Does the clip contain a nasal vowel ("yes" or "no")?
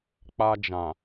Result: yes